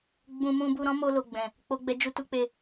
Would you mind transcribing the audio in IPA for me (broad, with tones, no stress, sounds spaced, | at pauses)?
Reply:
ɡ͡b ũ˧ m ũ˧ b u˧ ɾ ɔ̃˦ m o˧ l o˨ ɡ͡b ɛ̃˨ | k͡p o˧ ɡ͡b ɛ˧ d͡ʒ u˧ t u˦ k͡p e˦˨